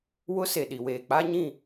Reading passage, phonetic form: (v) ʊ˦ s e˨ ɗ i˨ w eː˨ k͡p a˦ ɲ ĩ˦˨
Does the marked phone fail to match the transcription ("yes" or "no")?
yes